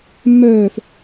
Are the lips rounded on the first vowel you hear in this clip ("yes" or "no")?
yes